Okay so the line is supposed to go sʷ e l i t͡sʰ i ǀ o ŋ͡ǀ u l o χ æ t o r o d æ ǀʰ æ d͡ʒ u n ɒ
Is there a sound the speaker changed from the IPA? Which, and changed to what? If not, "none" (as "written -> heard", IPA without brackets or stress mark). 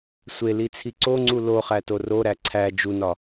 d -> ɾ